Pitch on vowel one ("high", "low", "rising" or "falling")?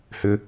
low